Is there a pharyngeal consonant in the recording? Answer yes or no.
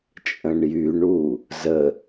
no